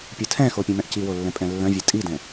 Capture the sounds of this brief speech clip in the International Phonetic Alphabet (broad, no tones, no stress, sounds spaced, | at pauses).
pʲ ɯ tʰ ɛ̃ x o pʲ õ m ɛ̃ ʔ c i w o lː ɛ̃ pʼ ɛ̃ lː œ̃ vʲ ɛ tʼ i d ɛ̃